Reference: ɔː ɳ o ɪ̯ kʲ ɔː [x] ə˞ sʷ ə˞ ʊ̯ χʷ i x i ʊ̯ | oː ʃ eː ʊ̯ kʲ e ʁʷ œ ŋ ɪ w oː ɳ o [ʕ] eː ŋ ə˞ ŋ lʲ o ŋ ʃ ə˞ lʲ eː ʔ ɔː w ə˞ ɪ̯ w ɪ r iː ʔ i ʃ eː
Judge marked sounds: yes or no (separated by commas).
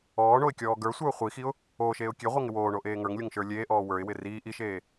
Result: no, no